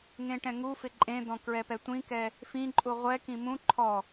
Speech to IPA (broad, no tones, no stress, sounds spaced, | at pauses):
ŋ ẽ ʈ ɛ̃ ŋ u f ɪ ǃʼ ẽ d̪ ɔ̃ k ɹ ɛ p ɛ tʷ ĩ k ɛ | f ĩ ǃʼ u ʁʷ ɛ k ĩ m ũ ǃʰ ɔ